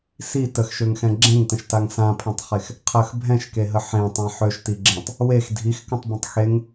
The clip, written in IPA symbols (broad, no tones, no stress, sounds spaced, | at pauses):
s i t ə x ʃ ø ŋ x ɛ̃ ɡ͡ǁ ẽ ŋ t ə̃ ʃ t a ŋ s ã pʰ ɛ̃ tˤ χ e x | qʰ ə x bʱ ɛ̃ ʃ k e ɦ ə ħ ẽ tˤ ã ħ ø ʃ t i ɡ͡ǁ ẽ tˤ | w e x dʱ i x k ə̃ tˤ b ə̃ tˤ x e ŋ